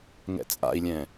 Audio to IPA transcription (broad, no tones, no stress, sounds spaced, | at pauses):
ŋ ɛ̰ t͡sʼ a̰ i̯ lʲ ɛ̃